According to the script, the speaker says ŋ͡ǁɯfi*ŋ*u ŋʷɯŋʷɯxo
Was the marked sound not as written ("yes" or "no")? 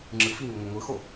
no